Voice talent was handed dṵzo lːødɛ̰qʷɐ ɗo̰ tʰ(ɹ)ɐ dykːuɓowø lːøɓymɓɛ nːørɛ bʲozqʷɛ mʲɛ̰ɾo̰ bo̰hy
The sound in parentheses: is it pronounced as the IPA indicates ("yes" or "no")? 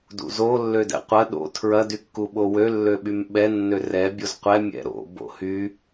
yes